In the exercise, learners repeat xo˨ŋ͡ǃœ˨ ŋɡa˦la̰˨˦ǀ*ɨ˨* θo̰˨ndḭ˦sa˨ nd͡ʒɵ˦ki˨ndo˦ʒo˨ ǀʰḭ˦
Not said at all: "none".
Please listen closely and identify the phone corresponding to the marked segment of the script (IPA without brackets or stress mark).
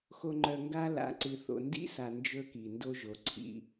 ɨ˨